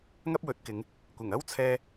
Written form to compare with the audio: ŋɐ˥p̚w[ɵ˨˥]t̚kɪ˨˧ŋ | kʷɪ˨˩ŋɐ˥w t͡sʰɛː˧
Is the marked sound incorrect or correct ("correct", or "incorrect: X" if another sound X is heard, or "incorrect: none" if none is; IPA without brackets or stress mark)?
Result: correct